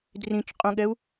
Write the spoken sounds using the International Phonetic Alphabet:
drĩt͡ʃqʼũɠɛu̯

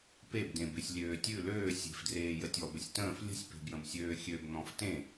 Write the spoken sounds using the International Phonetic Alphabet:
pebdẽ besʲlʲøːtʲʉ løː sʲe̤fdreː jətʲɔbəsʲ tə̃ːf lʲə̤sʲ pe̤bjə̃bsʲøːxʲøb n̪ɔ̃ftẽ

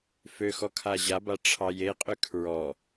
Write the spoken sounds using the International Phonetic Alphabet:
fø xɔkʰaʑaba ʈ͡ʂʰɑjeqʼø kʰɹɔ

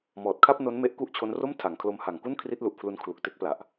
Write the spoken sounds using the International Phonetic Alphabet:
mɔː˨˩t̚kʰa˥˩p̚ no˦˥nme˦˥ʔ ku˦˥ʔt͡ɕʰo˦˥nro˥˩m tʰa˩˦ŋkʰlo˧mha˨˩ŋku˥˩n kʰri˦˥t̚lu˨˩ʔpʰlu˧n kʰlu˨˩k̚te˦˥k̚pla˨˩ʔ

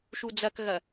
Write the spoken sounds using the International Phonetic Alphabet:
ʃud͡zɐkɣɐ

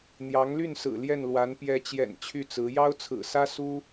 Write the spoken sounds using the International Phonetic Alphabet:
n̪jɑ˧˥ŋly˥˩nsɹ̩˨˩ ljɛ˥˩nlwa˧˥n pjɛ˧˥t͡ɕjɛ̰˨˩n t͡ɕʰy˥˩t͡sɹ̩˧˥ jɑ˥ʊ̯t͡sʰɹ̩˨˩sä˥ su˥

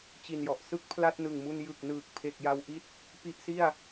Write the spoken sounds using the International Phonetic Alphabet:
t͡ɕi˨˩njɔ˨˩ʔsɯ˦˥k̚ pʰla˥˩t̚nɯ˨˩ŋmu˧n jɯ˨˩k̚ nɯː˨˩k̚pʰe˨˩k̚ja˧wʔi˦˥t̚ | pi˦˥ʔsi˥˩a̯

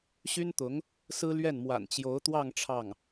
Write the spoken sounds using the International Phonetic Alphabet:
ɕy˥nt̪ʊ˧˥ŋ | sɹ̩˥ lɥɛ˥˩nmwa̰˨˩n t͡ɕjo˧˥ʊ̯t̪wɑ˥˧ŋ ʈ͡ʂʰɑ˥˩ŋ

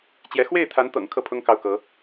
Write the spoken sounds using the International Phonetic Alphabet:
t͡ɕjɛ˧˥ xwe˥˩ɪ̯t̪ʰa˧˥nt̪ɤ̰˨˩ŋ kʰɤ˥˩pʰʊ˥ŋ kɑ˥˩ʊ̯kɤ˧˥

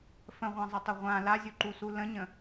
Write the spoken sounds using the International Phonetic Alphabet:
fə̃ʁʷãzˤɪtˤə ʁʷã lazʲuǃusu lə̃ɲə̃

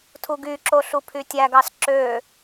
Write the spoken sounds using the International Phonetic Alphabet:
tʰuɡyǁo ɬupʰytʲæɡɑs ǁø

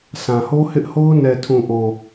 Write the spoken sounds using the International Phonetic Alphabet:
sã˨ho˦hɪ˦ʔho˦ʊ̯ nɛ˨tʰũ˨ʔo˨

